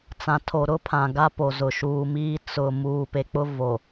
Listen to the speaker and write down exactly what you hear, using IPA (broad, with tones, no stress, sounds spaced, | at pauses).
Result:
t͡s ã˨ tʰ o˨ ɾ ʊ˦ pʰ ã˨ ɡ a˦ p o˨ z ʊ˨ ʃ uː˨ m iː˦ t͡s ʊ˨ m uː˨ p e˨ k͡p ʊ˦ v o˨